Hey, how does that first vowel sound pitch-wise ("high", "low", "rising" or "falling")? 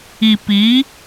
low